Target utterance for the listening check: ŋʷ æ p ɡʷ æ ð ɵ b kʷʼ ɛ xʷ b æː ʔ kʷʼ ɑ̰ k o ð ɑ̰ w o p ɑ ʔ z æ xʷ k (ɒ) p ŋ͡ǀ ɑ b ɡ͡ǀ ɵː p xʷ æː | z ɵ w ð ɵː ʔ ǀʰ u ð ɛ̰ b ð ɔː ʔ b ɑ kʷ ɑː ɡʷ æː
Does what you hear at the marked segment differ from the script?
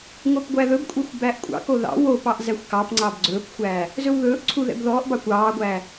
yes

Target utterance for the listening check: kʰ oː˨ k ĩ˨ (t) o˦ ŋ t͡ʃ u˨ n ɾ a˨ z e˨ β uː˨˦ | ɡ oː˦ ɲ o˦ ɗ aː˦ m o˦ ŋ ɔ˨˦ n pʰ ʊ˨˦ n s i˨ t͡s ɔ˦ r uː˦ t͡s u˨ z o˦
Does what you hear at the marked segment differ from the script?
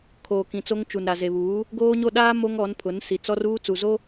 yes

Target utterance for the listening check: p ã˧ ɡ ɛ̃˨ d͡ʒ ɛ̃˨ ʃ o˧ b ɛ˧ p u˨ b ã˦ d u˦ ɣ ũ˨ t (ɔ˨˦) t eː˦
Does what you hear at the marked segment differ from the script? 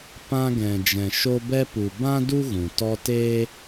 yes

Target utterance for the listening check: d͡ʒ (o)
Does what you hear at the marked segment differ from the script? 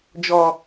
yes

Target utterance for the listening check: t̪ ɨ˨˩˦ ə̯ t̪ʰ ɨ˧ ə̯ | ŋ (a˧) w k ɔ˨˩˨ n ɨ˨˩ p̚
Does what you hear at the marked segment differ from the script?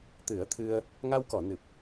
no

